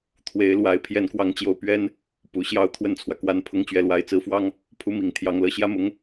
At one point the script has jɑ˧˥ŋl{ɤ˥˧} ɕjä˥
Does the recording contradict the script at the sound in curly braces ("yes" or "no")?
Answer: yes